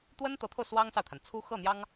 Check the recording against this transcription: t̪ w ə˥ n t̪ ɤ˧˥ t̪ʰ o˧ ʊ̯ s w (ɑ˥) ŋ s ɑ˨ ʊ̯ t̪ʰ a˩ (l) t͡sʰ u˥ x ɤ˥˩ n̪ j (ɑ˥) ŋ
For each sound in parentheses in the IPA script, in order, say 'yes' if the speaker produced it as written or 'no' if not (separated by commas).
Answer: yes, no, yes